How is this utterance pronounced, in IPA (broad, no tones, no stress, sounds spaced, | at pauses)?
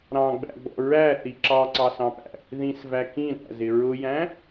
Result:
ɾ ɑ̃ ɡ͡b æ̰ ɡ͡b ɔ̰ ɹ æ θ i ǁ ɑ ǀ ɑ s ɑ̃ p æ̰ | ð ĩ s v æ k ĩ ɾ æ̰ z ɪ ɹ ʊ j æ̃